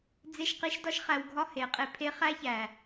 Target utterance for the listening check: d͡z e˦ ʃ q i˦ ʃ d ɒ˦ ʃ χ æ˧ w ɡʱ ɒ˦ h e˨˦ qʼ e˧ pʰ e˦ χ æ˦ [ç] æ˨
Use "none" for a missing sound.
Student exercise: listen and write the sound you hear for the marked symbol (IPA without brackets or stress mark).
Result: ç